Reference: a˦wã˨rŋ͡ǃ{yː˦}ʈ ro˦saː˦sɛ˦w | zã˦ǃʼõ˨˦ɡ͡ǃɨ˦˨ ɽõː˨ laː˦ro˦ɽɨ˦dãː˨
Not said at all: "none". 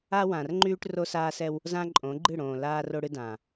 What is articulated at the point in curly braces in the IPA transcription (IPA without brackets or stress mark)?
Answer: yː˦